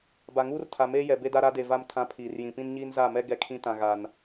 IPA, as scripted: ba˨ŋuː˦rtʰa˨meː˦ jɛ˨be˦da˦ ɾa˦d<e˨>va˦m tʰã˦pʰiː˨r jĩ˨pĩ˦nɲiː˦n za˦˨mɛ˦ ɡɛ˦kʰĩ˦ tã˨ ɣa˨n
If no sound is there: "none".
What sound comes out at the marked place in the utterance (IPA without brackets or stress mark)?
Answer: e˨